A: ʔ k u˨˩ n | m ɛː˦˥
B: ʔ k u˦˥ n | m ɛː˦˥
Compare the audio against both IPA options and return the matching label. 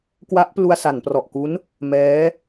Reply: B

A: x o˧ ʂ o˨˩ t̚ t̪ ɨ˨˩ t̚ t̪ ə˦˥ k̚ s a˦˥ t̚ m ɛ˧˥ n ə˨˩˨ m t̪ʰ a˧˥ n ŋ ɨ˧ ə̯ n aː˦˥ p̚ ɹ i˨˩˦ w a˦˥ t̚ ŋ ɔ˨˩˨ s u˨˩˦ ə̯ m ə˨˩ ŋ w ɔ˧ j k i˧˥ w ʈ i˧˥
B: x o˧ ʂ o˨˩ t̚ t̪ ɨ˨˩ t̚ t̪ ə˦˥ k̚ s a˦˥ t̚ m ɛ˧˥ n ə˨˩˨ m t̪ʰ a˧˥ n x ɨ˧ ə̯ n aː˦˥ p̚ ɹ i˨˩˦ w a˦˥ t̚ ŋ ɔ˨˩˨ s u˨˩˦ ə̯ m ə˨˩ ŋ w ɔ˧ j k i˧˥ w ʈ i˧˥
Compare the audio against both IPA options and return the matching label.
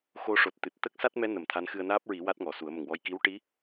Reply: B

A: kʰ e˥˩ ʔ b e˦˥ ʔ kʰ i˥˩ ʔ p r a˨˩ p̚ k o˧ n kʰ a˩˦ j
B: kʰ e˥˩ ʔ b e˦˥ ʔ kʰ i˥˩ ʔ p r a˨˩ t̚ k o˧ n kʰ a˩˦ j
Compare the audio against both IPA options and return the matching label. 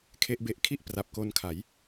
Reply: A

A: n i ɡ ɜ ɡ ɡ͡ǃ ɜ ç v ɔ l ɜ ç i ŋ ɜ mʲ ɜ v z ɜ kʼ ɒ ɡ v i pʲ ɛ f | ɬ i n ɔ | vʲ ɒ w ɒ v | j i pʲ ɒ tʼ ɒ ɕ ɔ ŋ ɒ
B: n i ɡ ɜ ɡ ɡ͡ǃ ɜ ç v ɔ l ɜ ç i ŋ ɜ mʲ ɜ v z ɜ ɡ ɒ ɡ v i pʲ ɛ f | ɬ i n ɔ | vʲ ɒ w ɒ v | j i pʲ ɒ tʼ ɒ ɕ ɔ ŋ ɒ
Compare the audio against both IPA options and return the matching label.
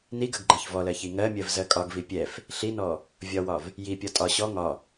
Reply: A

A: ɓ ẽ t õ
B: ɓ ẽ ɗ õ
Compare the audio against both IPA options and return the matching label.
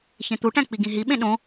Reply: B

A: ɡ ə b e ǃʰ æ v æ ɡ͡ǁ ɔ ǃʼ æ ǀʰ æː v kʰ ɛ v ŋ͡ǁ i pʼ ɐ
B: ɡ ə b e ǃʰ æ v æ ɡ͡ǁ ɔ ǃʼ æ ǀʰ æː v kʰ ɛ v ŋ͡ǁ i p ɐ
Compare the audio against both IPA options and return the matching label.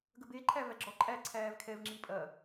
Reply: A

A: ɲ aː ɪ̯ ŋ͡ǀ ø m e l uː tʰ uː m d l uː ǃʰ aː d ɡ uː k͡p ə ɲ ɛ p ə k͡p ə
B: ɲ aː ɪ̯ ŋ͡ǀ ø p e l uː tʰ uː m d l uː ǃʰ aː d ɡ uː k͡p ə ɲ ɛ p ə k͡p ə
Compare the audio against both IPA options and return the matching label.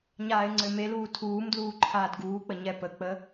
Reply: A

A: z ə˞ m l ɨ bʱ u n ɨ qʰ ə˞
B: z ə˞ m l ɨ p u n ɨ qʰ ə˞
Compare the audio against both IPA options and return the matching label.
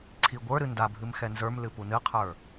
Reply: B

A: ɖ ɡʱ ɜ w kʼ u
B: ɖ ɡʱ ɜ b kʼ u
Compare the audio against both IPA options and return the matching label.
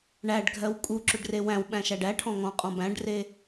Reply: A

